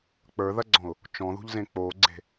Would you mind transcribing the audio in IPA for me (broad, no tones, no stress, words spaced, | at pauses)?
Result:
k͡pə˞ðɐɡ͡ǀɔ̃ʊ̯ | t͡ʃɔ̃ðṳʎzẽ k͡poɡ͡ǀe̤